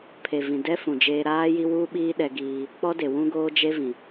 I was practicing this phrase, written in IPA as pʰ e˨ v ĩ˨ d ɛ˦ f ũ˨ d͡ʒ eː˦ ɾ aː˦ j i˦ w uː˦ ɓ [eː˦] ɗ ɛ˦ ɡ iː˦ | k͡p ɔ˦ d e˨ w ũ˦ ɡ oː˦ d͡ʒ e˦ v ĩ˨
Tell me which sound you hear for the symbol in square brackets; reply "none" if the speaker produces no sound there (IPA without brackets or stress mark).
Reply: iː˦